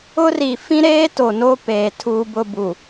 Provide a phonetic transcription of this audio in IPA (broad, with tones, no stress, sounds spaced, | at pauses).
ʊ˦ r i˨ f ĩ˦ ɾ eː˦ t o˨ n o˦ p eː˨ tʰ uː˦ b ʊ˦ b u˨